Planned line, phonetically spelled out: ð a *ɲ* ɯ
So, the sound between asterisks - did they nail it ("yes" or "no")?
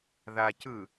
no